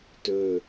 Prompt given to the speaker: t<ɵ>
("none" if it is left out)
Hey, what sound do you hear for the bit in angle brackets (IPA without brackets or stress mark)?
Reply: ɵ